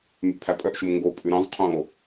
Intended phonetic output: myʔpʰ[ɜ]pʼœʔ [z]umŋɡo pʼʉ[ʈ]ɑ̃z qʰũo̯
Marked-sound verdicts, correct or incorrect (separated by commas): incorrect, incorrect, incorrect